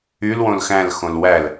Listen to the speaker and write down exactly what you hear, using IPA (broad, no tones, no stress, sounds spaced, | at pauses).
y l w õ l x æ̃ l x õ l w æ l